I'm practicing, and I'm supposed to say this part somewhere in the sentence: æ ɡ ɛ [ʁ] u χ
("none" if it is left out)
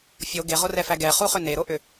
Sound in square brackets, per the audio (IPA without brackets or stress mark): χ